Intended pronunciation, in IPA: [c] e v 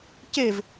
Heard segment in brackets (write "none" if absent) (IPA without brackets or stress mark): c